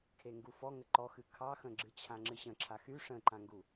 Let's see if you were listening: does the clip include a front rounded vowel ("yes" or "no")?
yes